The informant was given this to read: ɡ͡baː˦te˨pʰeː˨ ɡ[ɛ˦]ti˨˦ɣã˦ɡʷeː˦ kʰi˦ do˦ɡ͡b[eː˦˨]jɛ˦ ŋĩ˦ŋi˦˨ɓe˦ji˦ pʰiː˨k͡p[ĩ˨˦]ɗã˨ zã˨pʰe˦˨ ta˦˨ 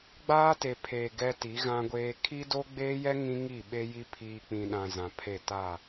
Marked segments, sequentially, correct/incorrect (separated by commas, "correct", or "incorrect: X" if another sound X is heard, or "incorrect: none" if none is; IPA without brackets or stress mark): correct, incorrect: eː˦, incorrect: ĩ˨